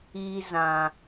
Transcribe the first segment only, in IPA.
i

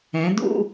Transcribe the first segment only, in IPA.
ɛ̃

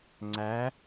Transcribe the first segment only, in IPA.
ŋ͡ǀ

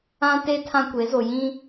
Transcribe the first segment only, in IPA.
ã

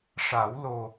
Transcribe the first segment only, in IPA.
ʂ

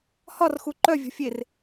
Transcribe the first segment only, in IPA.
h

